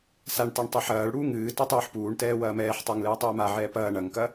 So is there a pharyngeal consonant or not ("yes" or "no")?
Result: yes